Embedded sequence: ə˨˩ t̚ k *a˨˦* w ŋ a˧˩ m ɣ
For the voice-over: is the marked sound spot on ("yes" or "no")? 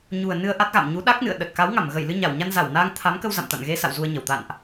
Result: yes